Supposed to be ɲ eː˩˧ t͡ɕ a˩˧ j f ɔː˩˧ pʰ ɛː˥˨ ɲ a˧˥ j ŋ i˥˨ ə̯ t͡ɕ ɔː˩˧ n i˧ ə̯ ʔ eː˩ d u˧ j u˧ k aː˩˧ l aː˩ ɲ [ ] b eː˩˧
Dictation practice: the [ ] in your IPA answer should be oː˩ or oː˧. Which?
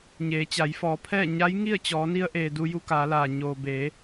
oː˩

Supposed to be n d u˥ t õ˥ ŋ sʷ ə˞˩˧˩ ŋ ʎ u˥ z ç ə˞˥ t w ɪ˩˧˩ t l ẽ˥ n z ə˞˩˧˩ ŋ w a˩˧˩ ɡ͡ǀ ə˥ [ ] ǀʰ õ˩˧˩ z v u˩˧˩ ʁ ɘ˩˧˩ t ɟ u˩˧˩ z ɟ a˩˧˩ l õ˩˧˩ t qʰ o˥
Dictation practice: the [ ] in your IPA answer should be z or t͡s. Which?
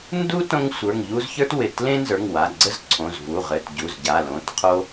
z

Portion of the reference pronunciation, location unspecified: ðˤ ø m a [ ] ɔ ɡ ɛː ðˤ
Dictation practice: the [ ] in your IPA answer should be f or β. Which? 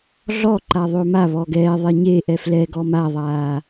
β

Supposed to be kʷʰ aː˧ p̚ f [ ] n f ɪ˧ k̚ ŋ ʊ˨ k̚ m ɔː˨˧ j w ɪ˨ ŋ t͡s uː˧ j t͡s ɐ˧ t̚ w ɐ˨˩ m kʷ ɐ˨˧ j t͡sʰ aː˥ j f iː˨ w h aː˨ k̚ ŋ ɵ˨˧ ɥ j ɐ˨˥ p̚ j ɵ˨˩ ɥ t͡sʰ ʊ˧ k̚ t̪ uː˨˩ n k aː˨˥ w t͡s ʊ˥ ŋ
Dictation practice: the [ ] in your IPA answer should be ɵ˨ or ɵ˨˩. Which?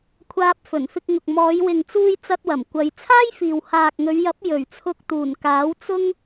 ɵ˨˩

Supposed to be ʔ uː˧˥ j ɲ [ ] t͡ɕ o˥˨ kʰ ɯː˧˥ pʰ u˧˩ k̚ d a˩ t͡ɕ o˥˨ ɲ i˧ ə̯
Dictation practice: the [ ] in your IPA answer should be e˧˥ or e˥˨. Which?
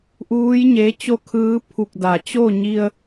e˧˥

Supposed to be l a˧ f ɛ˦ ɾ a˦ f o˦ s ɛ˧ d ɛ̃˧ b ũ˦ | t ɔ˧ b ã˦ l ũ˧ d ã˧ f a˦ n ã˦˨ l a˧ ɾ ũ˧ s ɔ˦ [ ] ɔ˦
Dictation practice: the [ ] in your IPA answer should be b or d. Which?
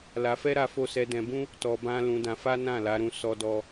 d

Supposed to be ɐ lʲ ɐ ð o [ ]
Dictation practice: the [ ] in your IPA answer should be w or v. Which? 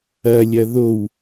w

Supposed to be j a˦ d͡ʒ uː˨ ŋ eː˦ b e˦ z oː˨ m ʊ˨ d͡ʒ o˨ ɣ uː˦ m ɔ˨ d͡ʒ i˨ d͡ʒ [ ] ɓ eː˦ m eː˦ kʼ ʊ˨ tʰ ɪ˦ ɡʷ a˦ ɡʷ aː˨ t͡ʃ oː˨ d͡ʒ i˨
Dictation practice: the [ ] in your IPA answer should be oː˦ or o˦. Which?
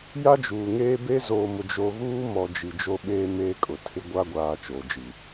o˦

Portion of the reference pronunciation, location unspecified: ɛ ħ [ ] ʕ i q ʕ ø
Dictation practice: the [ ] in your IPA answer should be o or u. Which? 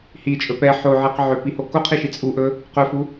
o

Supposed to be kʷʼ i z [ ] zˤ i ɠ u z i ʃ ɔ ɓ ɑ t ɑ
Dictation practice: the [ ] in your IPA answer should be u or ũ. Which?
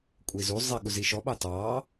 u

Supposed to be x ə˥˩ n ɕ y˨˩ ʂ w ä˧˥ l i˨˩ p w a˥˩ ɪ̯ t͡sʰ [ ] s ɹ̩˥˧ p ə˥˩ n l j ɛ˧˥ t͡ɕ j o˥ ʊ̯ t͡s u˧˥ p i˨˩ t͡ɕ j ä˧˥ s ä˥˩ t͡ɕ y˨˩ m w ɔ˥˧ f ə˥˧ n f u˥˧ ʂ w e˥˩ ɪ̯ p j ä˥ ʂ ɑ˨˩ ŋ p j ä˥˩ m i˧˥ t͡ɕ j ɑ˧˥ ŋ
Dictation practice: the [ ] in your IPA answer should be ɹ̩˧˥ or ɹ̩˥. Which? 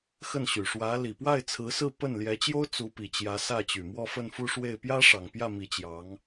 ɹ̩˧˥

